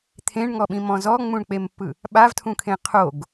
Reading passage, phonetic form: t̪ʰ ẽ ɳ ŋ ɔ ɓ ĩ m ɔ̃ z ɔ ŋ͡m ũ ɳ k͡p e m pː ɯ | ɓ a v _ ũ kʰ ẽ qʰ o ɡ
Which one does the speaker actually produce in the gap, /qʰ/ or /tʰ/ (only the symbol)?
tʰ